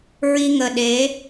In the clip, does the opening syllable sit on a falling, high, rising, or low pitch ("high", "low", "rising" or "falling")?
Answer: high